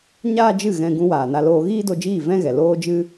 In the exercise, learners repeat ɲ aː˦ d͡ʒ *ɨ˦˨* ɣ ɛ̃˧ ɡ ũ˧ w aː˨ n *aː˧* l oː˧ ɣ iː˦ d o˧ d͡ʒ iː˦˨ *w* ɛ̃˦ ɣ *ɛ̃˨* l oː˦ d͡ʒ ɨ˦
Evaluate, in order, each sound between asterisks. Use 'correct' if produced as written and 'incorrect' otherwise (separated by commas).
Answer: correct, incorrect, incorrect, incorrect